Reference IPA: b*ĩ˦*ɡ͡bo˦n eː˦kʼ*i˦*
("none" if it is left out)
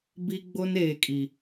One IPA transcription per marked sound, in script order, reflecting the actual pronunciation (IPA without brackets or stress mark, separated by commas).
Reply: i˦, i˦